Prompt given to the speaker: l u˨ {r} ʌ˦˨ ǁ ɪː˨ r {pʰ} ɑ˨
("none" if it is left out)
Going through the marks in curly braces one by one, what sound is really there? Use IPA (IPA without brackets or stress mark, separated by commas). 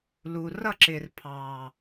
r, pʰ